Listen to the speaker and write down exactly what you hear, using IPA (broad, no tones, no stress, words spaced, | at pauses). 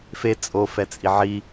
fe t͡sʼo fɛt͡sʼiʕi